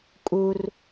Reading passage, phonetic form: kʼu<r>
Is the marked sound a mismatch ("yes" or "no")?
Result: no